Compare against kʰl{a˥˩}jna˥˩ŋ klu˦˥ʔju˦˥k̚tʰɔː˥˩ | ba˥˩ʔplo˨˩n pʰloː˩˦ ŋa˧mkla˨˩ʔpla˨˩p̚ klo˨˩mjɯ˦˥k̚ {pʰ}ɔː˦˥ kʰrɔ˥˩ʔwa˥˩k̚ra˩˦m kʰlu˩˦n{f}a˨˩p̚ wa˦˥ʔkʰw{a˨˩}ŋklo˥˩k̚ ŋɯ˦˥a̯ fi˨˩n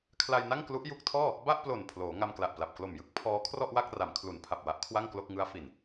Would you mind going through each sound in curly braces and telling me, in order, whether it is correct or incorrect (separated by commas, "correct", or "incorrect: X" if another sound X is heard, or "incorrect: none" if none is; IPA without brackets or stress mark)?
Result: incorrect: a˧, correct, incorrect: pʰ, incorrect: a˥˩